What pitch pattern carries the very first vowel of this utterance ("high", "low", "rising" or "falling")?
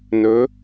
rising